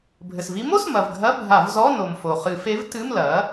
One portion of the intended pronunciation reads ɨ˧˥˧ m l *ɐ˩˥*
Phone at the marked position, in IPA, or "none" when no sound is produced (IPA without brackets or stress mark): ɐ˩˥